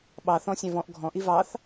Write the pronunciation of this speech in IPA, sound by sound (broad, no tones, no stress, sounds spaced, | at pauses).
ɓ ɑ θ ɔ̃ sʲ æ̃ v ɔ̃ ʔ ɡʱ ɔ̃ ʔ i v ɑ θ